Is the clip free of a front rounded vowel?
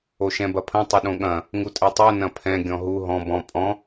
yes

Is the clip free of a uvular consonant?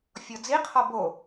no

